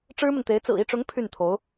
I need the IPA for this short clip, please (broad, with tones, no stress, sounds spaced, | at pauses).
ʈ͡ʂ ɻ̩˥ m ə˨ n t̪ e˧˥ ɪ̯ t͡s ɹ̩˨˩ i˥˩ ʈ͡ʂ ʊ˧˥ ŋ pʰ y˥˩ n t̪ʰ o˧˥ ʊ̯